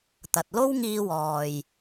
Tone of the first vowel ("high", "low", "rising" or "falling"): low